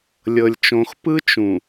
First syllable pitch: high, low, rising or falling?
low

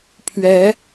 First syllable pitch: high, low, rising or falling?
rising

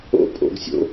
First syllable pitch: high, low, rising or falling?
high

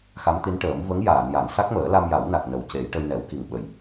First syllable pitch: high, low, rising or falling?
rising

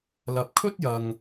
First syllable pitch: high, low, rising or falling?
low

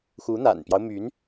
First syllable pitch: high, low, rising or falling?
rising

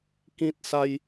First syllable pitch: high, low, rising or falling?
high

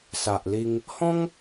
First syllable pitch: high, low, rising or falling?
low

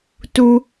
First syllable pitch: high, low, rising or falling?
low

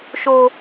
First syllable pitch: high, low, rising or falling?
low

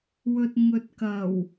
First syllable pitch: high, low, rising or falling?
low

